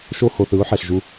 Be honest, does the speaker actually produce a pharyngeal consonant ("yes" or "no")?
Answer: yes